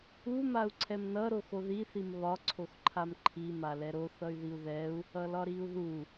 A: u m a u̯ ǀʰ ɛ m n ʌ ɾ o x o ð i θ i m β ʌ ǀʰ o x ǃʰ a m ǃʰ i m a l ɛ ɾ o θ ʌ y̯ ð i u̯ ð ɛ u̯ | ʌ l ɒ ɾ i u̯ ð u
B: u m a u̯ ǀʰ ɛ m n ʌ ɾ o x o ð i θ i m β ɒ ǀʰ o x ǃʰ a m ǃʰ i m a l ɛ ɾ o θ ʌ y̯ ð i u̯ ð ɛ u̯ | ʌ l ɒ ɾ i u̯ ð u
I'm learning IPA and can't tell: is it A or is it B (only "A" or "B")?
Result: B